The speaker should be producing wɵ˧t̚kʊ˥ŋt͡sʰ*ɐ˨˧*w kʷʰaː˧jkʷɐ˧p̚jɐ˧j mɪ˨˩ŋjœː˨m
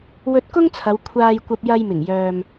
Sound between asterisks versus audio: correct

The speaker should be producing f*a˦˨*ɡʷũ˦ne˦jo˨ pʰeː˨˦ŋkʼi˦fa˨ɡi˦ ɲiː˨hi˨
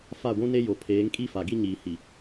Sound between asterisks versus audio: correct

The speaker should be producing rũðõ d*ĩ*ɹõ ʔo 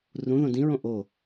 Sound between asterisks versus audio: correct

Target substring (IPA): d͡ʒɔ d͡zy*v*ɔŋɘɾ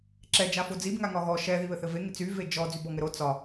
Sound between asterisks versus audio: incorrect: b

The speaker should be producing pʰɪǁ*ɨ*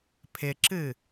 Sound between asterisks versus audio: correct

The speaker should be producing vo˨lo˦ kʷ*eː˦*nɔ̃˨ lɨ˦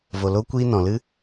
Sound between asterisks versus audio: incorrect: iː˦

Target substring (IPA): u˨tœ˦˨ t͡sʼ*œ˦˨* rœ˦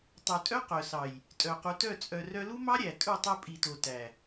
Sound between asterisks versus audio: incorrect: œ˨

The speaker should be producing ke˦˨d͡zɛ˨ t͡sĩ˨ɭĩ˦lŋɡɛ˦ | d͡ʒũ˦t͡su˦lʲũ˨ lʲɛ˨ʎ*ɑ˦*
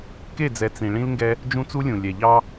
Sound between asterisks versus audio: correct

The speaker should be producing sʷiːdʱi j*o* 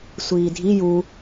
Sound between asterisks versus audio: incorrect: u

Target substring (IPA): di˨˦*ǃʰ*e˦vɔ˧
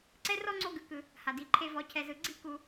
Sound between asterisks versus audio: correct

